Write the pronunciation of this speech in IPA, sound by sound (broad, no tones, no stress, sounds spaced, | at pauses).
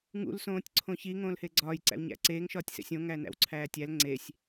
ŋ ṵ l s õː tʲ ǀʰ õ ç i ŋ õː l h e ɡ͡ǀ ɒː j ǀ æ̰ w ɲ æ̰ ǀ eː ŋ ʃ ɒː tʲ s ḛ sʲ õ ŋ æ n æ̰ w ǀʰ æː tʲ æ l ŋ͡ǀ e sʲ